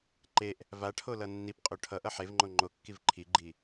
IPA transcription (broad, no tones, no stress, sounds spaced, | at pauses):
ǃ e ʔ | v a ʈʰ o l ʌ nː i p qʼ o ʈʰ ʌ ʔ ʌ ħ e v ŋ͡ǃ o ŋ͡ǃ o kː i v ǃʰ i ɡ͡ǃ i